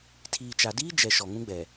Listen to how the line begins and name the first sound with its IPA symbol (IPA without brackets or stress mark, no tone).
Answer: tʰ